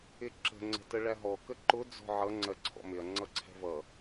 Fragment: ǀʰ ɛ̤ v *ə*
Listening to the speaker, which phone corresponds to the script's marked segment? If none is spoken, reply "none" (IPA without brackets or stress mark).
ʌ